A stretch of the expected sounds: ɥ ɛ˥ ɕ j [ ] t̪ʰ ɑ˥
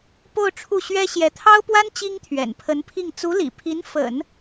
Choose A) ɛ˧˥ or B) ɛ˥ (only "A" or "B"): A